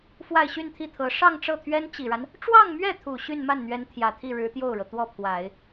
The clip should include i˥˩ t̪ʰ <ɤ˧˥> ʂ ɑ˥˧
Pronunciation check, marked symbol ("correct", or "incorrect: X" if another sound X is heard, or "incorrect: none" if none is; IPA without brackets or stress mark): correct